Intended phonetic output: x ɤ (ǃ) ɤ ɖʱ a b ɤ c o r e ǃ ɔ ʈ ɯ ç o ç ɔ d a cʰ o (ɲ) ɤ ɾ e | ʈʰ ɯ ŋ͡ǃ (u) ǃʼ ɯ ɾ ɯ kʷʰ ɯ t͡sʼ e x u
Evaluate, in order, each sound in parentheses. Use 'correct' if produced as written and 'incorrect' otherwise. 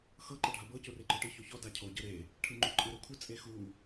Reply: correct, incorrect: ɟ, correct

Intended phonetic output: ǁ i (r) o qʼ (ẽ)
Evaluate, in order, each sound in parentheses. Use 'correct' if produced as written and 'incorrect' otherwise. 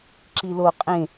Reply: incorrect: l, correct

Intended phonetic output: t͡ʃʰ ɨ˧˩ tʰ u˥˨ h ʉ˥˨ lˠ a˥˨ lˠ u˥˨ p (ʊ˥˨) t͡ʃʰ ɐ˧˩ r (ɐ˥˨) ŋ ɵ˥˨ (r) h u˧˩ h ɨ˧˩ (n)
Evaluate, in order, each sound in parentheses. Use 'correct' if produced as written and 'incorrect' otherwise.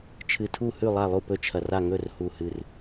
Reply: incorrect: ɵ˥˨, incorrect: a˥˨, correct, incorrect: r

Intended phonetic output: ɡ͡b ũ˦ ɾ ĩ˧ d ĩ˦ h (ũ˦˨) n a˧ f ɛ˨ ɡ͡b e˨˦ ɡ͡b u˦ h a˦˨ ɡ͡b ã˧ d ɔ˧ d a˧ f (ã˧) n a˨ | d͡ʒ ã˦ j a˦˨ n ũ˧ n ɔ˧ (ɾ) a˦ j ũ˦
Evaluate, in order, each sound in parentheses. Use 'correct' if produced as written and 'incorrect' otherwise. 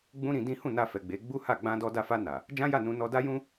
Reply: correct, incorrect: a˧, incorrect: d

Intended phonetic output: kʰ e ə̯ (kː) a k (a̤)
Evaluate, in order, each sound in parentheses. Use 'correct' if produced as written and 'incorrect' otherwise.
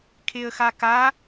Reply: incorrect: x, incorrect: a

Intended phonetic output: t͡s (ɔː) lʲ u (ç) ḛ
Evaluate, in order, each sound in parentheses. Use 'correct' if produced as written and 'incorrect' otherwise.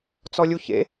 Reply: incorrect: ɔ, correct

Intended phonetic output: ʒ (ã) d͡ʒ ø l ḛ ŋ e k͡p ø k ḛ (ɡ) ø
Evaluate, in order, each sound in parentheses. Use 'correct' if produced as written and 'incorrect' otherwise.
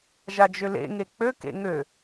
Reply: incorrect: a, incorrect: ŋ

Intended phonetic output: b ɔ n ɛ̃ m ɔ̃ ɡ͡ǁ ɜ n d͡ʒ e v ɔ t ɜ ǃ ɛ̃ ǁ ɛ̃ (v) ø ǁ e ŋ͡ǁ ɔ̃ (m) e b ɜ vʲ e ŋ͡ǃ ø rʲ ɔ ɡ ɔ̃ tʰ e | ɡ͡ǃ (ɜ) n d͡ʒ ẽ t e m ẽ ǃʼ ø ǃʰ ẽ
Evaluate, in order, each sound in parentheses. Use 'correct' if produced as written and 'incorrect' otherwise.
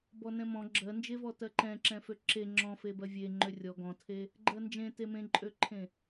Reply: incorrect: f, incorrect: f, correct

